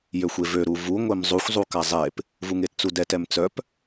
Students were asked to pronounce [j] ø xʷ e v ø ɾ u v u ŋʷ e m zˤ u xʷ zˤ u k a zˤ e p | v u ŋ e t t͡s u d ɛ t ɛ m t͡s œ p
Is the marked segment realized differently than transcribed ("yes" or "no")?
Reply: no